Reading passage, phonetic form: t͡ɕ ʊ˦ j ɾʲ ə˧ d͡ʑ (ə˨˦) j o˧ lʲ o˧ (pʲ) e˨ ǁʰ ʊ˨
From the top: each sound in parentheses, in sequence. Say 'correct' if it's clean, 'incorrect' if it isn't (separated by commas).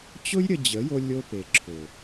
correct, incorrect